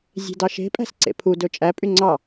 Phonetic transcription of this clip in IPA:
zʲ e̤ d ɑ ʃ e̤ pʼ æ̤ s ǀ ḛ pʰ u d ɵ t͡ʃʼ æ pʼ y ŋ͡ǀ ɑ

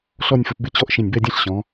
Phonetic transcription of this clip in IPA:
ɬ ɔ˥˧ nʲ f ə˧ p b ɪ˥˧ t͡ɕ ɔ˥˧ ʔ ʃ ĩ˧˩ nʲ b ɛ˥˧ dʲ æ̃˥ ɬ ɕ ɔ̃˩˧

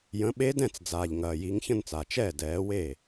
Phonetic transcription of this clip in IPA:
j ə̃˨˥ ɓ e˦˥ d ɛ̃˥˩ t͡s d͡z aː˨˩ ʎ ŋ ɐː˨˩ j i˨˥ ŋ ç ə̃˥˧ n t͡s a˨˩ t͡ʃ ɛː˥˩ d ɛː˨˥ w e˥˩

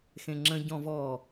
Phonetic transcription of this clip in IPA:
x ẽ ŋ͡ǁ ə̃ ɟ ɔ̃ v ɔ

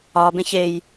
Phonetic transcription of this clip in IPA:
ɒ b ẽ ç e j

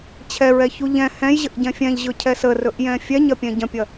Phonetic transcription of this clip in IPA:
t͡ɕʰ ɛ ɹ ɛ ç u ʎ ɛ̃ h ɛ̃ j ʑ ə ʔ ɟ ɛ̃ fʲ ɛ̃ ʎ ʑ ɵ cʰ ɛ s ə r ɵ ʔ j ɛ̃ fʲ ɛ ɲ ɐ pʲ ɛ̃ ɟ ɐ̃ pʲ ɐ

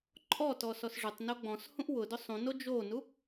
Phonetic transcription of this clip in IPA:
ǃʼ ɔ t ɔ s ɔ s ʐ ʊ tˤ n o ɡ͡b ɔ̃ s h ũ ʔ w ʊ d ʊ sˤ ũ n o d͡ʒ o n u

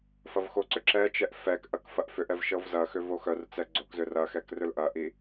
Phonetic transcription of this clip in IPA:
f ɐ v x o ǀ ʏ ǁ ɛ t͡ʃ ɛ ʔ f ɛ k ʔ ɐ k f ɐ ʔ f ʏ ʔ ɛ v ʃ ɤ v z ɐ x ʏ v o x œ r t͡s ɛ ɡ͡ǀ o k z ʏ r ɐ x ɛ k r ʏ l ʔ ɐ ʔ i

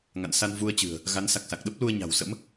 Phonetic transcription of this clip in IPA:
ŋ a̰˧˨ n s a˧ n v u˧ ə̯ t͡ɕ ɨ̤˨˩ ə̯ | ɣ a˨˦ n s a˨˩ k̚ s a˨˩ k̚ ɗ ə˦˥ p̚ l u˧ ə̯ ɲ a̤˨˩ w s ə̰˧˥ m

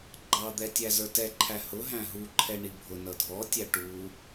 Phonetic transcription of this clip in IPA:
ɡ͡ǃ ɑ d̪ ɛ tʲ æ z ə˞ t ɛ ǃʰ æ h ʊ ɦ æ̃ ɦ u ǃʰ ɛ ɳ i bʱ ʊ n ʌ dʱ ɔ tʲ æ ʈ u

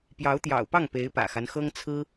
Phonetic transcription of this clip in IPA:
p j ɑ˧˥ ʊ̯ t̪ j ɑ̰˨˩ ʊ̯ p ɑ˥˩ ŋ p e˧˥ ɪ̯ p ä̰˨˩ x a˦ n x ɤ˥ ŋ t͡sʰ ɹ̩˥

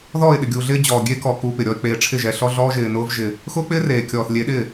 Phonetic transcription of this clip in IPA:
ð ɔː˦˨ ɪ̯ ɗ ɪ˨ ɡʲ uː˨ ɮ ɪː˦ d͡ʑ ɔː˨ ɡʲ e˦ k ɔ˨ k uː˦ p ɪ˨ ɾʲ ɔ˦ ɪ̯ k͡p eː˨ ʈ͡ʂʰ ɪ˦˨ ʒ ɛ˨ ɬ ɔ˦ ɮ ɔː˦ ʒ ɪː˨ n ʊː˦ v ʒ ɪ˦ | x ʊː˦ k͡p ɪː˦ r eː˨ kʲ ɔː˨ θ lʲ e˨˦ ɗ ɪ˦˨

